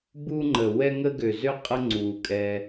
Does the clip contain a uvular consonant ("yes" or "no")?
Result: yes